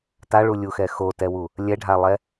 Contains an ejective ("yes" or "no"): no